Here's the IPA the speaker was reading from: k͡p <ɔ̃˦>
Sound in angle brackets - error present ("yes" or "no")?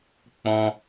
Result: no